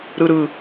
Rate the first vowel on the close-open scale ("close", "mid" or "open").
close